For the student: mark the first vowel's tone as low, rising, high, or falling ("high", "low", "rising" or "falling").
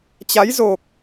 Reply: rising